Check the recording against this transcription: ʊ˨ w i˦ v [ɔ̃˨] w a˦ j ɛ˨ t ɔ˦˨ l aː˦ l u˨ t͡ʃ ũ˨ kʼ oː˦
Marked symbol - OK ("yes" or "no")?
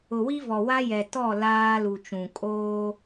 no